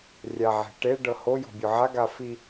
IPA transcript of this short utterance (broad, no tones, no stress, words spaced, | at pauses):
rʲaʕe̤ʈe ɖɤhojɔ̤ bʲɔʕaɡa fi